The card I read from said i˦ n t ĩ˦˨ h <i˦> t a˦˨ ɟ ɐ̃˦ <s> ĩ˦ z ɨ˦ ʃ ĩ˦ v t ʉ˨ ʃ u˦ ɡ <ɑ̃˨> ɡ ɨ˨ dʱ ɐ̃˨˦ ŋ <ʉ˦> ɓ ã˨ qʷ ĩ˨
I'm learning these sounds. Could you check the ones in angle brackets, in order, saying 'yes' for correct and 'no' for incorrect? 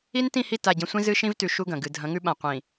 no, no, no, yes

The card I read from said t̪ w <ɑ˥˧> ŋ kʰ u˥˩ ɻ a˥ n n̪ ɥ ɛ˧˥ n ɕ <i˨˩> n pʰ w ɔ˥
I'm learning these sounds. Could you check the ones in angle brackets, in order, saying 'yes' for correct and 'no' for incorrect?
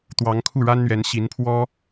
no, no

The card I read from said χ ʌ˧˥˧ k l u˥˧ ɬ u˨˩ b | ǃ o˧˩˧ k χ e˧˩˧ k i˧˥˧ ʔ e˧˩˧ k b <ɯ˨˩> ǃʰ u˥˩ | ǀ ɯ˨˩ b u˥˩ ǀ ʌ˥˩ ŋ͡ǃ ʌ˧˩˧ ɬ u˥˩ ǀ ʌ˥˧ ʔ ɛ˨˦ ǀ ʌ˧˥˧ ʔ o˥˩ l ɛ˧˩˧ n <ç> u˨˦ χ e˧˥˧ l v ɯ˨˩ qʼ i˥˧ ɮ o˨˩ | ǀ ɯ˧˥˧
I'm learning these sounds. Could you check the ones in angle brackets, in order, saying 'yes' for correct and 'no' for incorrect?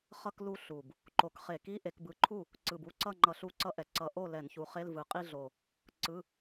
yes, yes

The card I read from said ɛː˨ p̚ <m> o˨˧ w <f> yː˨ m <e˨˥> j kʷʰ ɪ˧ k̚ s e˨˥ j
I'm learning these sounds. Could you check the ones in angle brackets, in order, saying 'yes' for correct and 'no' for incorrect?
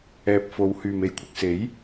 no, no, no

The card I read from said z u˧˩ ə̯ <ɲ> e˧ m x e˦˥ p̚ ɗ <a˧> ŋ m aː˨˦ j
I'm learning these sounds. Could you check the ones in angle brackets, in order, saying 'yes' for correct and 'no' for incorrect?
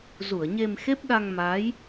yes, yes

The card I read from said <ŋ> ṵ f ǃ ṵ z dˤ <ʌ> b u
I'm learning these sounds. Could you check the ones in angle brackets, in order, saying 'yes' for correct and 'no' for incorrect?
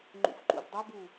no, yes

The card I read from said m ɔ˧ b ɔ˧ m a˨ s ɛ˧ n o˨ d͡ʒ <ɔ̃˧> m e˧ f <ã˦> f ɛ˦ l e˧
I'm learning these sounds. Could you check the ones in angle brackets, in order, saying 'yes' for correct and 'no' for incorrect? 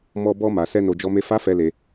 no, no

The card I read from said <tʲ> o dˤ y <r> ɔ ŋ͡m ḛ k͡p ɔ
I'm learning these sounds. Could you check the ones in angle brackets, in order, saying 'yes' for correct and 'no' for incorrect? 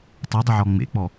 no, no

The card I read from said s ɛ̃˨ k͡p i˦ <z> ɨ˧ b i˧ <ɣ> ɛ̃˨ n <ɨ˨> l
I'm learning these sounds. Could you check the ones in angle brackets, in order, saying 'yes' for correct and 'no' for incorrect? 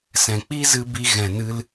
yes, yes, no

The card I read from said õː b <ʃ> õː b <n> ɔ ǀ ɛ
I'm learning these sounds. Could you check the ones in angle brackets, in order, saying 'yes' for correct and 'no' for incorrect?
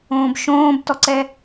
yes, no

